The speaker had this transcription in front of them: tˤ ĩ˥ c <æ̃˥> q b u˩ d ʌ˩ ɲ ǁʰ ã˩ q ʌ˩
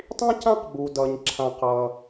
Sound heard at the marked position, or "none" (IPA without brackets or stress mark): ã˥